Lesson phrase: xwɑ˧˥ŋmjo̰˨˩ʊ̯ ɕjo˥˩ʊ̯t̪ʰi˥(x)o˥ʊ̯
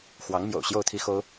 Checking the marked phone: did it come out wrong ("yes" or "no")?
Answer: no